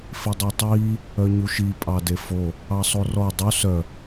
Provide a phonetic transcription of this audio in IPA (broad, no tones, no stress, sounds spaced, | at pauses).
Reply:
f i dˤ u tˤ iː | œ ɲ u ʃ i pʼ ɑ d e f o | ɑ sˤ o r ɔ dˤ u s œ